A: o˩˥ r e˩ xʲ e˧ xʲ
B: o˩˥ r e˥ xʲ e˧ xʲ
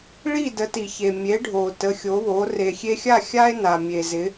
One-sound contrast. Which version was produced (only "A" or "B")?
A